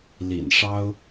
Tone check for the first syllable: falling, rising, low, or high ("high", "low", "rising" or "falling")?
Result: low